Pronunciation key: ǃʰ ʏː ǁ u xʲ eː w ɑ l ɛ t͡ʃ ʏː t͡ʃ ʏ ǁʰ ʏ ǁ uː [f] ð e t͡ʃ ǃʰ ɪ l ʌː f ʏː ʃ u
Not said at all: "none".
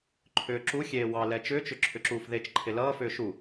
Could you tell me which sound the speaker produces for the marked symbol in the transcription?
f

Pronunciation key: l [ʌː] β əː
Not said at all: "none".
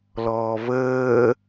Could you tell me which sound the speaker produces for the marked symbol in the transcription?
ɔː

